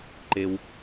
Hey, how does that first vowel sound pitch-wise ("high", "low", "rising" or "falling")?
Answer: high